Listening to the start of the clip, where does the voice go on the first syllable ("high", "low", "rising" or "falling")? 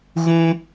high